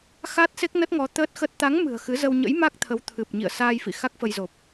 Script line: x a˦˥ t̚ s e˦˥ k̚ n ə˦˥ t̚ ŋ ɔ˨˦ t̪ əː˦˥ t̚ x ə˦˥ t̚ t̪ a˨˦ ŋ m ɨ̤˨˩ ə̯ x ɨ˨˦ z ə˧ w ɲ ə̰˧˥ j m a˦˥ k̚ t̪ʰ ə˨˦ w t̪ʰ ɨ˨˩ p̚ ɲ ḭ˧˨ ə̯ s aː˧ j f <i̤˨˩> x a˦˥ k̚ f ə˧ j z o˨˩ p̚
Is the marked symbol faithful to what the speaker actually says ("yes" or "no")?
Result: no